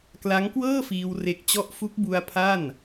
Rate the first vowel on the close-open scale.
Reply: open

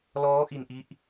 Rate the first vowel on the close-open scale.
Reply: mid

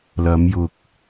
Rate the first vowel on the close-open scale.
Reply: open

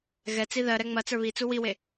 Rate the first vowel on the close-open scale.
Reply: mid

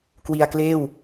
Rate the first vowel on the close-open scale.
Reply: close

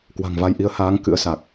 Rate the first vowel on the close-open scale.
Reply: open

